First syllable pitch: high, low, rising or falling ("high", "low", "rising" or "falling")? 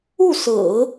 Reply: falling